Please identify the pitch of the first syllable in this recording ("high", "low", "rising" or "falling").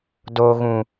low